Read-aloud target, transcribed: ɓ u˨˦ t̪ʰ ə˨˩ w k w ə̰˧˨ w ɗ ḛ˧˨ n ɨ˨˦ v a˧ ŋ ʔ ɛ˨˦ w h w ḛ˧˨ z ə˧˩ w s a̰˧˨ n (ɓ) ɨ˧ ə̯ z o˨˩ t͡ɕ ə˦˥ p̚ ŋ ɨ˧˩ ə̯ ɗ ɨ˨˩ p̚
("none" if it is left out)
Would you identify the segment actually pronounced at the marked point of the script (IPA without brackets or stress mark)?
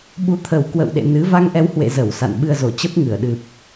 ɓ